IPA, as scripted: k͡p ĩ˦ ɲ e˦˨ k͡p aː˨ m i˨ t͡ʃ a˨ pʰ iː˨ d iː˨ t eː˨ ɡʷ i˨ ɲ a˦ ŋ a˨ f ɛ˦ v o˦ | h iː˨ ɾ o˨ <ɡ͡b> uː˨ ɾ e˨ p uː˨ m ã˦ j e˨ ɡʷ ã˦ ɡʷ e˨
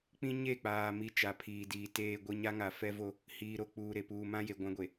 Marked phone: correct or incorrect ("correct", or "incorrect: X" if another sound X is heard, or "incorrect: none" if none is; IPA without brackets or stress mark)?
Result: incorrect: k͡p